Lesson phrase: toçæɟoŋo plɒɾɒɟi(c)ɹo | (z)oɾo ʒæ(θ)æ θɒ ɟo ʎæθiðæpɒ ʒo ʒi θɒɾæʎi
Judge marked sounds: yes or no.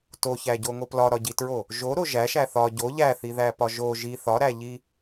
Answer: no, no, no

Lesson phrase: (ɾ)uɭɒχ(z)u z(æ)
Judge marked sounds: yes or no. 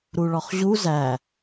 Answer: yes, no, yes

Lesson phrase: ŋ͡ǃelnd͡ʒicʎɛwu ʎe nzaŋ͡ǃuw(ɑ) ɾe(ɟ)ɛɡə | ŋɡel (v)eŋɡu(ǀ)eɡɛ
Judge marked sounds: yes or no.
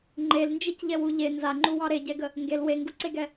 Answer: yes, yes, no, yes

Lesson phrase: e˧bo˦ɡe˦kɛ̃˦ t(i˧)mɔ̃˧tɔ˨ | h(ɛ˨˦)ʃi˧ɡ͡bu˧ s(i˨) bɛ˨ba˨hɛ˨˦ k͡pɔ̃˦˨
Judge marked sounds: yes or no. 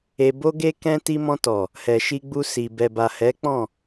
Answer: yes, no, yes

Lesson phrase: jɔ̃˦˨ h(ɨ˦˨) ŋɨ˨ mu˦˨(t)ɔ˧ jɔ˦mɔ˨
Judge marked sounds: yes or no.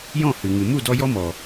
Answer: no, no

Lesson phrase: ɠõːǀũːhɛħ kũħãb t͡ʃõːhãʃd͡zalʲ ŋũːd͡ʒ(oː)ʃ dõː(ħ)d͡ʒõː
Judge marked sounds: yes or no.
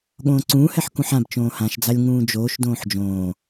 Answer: yes, yes

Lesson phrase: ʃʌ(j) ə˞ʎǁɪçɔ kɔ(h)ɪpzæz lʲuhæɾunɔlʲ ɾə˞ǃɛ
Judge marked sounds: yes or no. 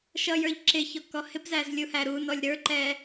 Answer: yes, yes

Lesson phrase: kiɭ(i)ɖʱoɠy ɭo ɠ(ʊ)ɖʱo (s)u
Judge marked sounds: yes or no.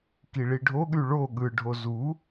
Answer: yes, no, no

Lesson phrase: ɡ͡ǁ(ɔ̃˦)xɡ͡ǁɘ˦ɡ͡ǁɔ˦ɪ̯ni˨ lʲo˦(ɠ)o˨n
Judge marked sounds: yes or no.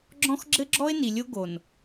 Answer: yes, no

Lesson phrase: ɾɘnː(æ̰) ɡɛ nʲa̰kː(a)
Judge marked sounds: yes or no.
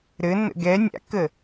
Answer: no, no

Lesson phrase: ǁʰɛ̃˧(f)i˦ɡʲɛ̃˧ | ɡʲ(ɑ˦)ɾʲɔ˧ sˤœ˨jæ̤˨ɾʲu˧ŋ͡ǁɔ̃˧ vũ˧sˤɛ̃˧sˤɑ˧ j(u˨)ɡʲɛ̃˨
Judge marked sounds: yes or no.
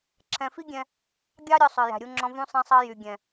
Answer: yes, yes, no

